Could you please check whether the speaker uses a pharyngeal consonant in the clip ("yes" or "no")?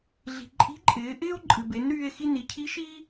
no